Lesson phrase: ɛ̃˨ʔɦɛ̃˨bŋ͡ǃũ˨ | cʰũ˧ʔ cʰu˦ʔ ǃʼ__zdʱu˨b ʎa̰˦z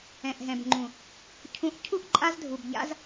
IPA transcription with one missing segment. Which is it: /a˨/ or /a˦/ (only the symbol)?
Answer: a˦